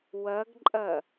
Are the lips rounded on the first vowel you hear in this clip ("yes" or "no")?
no